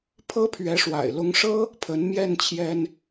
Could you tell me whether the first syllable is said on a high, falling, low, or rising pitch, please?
high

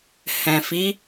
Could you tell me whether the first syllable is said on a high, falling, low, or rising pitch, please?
low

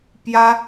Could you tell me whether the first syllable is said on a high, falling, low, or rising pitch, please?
high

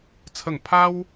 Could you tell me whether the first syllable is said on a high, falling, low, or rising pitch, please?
falling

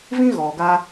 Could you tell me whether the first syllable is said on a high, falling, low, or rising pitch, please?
high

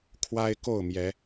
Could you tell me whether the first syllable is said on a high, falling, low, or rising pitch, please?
high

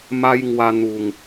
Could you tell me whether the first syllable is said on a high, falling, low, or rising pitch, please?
high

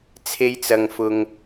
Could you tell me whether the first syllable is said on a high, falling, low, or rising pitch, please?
high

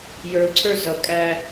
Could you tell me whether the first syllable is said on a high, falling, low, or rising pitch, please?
low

